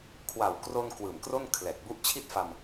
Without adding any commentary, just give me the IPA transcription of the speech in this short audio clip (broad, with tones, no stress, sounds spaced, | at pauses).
kʰ w a˨˩ w k r o˧ n k w ɯː˨˩ m k r o˥˩ n kʰ l ɛː˨˩ k̚ b u˦˥ ʔ t͡ɕʰ i˥˩ t̚ f a˧ m